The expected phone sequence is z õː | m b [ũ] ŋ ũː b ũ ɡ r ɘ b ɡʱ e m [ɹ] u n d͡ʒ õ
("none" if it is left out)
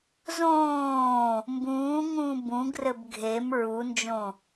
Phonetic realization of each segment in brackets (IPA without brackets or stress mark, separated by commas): ũː, ɹ